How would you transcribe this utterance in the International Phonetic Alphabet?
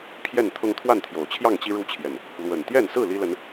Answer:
pʰ j ɛ˥˨ n t̪ʰ ʊ˦ ŋ t̪ʰ w a˥˨ n t̪ʰ j o˨˩ ʊ̯ t͡ɕʰ j ɑ˥˨ ŋ t͡ɕ i˦ ɻ u˦ t͡ɕʰ j ɛ˨˩ n | l w ə˨˩ n t̪ j ɛ˥˨ n s ɹ̩˥˨ l i˦ l ə˨˦ n

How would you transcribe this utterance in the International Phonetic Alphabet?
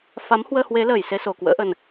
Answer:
f a˨˦ m h w əː˧ h w e˨˦ l əː˨˩ j s e˧ s o˨˩ k w ə̰ː˧˥ ʔ ə˨˩ n

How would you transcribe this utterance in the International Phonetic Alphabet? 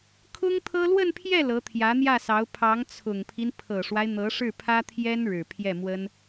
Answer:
kʰ ʊ˥ ŋ t̪ʰ ɤ˥ l w ə˥˧ n pʰ j ɛ˥˩ l ɤ˧˥ t̪ʰ j ä˧˥ n̪ j ä˥˩ s ɑ˧˥ ʊ̯ pʰ ɑ˧˥ ŋ t͡sʰ ʊ˨˩ ŋ pʰ i˦ n pʰ ɤ˨˩ ʂ w a˦ ɪ̯ n̪ ɤ˧˥ ʂ ɻ̩˥˩ pʰ ä˥ t̪ʰ j ɛ˥ n ɻ ɻ̩˨˩ pʰ j ɛ˥˩ m w ə˥ n

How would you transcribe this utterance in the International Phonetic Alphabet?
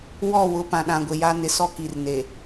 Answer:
w ɔ˦˨ w ʊ˨ p ã˨ ɗ ã˨ ɡʷ ɪ˨ j a˦ n ɪ˨ s ɔ˦ k i˨ r n e˨

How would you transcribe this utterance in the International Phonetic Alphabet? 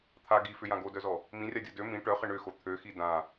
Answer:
t̪ʰ a ɡ i f ʏ j ã ɡ o d œ z ɔ | m ĩ rʲ a dʲ ɔ d ø m ĩ ʈ œ χ ə ɳ ʏ x o t̪ʰ ø x i d ã

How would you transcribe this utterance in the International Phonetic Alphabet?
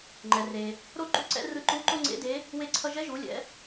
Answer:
ŋ͡ǃ ɛ˩ r e˩ | ɾ o˥ ǃ ṵ˧˥ ǀ ɛ̰˧˥ r ɯ˧ ǃ u˧˥ ǃ o˥ ŋ͡ǀ ḛ˧˥ d e˧˥ | w e˧ ǀʰ ʌ˧ ʒ ɛ˧˥ ʒ u˩˧ lʲ ɛ̰˩˧

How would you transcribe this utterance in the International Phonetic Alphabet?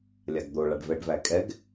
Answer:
lʲ a ɡ d̪ o ɭ a ɖ v ɛ ɖ v æ kʼ ɛ ɡ

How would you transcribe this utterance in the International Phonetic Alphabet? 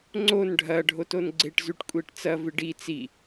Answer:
ŋ͡ǀ o n ɖʱ ɐ ɖʱ o t o n ɡ͡ǀ e ʈ z ʉ ʈ kʷʼ e ʈ t͡s ɐ v ɨ ɖ i t͡s i

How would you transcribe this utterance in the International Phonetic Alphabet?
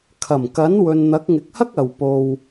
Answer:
kʰ ɐ˨˩ m k ɐ˨˥ n w ɵ˨ n n̪ ɐ˨˥ k̚ ŋ ɪ˨ k̚ h ɐ˥ k̚ ɐ˨˧ w p o˧ w

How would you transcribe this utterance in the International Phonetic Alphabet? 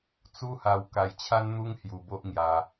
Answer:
t͡s u˦ h a˧ w k a˧ j t͡ɕʰ a˦ n n̪ u˦ ŋ h j u˧ b o˦ ʔ ŋ j a˧

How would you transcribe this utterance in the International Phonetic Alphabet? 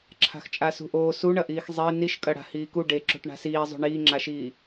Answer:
ǁʰ a̤ x t͡ʃʼ a s ṳ ʔ oː s u ɳ ɐ ʔ iː x zˤ e n i ʃ kʼ ɐ ɽ a̤ h iː k u ɖ e ǁ o̤ ʈ ɳ a̤ s iː zˤ o̤ ɳ iː ŋ͡ǁ a ʃ iː

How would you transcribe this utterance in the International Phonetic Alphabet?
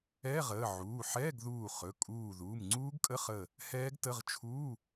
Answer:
ɛ˧˥˧ ʁ əː˩˧˩ ʕ uː˩˧˩ ħ ɛː˧˥˧ ɡ ð uː˧˩ χ ɵ˩˧˩ kʼ uː˧˩ ð uː˩˧˩ m ŋ͡ǀ uː˦˥ ɡ kʼ ə˧˥˧ χ əː˧˩ | h ɛː˦˥ ɡ t ə˧˥˧ ʁ t͡ʃʰ uː˧˥˧

